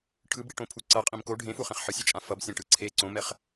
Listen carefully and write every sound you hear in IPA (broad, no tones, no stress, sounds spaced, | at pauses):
ʈʰ ɯ b ɽ i ʈ õ pʰ u ǀ ʌ qʼ ĩ m k o ɖʱ ẽ f u χ ẽ χ ħ ɯ sʲ i t͡ʃʼ ã f ʌ b sʲ ɛ̃ ʈ ɯ ǀʰ e ǀ õ m ɛ χ